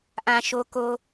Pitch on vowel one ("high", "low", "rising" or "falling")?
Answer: low